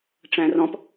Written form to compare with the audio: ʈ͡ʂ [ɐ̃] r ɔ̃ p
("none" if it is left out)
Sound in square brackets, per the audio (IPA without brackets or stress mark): æ̃